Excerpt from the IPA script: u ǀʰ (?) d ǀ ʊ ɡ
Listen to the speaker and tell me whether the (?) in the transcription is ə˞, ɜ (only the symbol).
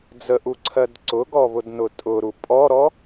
ɜ